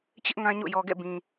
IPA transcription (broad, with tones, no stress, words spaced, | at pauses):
t͡ɕɪ˦ʔ ŋã˦ɲo̰˦˨ jɔ˨ɡɛ̰˦˨ bĩ˨